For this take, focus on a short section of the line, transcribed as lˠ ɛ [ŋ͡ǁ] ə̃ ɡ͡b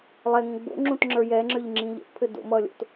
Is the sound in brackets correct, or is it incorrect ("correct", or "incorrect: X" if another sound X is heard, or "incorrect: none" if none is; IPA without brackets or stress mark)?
incorrect: ŋ